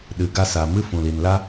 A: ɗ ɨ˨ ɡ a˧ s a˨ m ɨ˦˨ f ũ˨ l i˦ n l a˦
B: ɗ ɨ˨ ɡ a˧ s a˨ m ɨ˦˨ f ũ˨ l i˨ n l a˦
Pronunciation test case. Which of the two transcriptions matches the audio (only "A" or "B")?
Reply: B